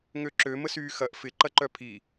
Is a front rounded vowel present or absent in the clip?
present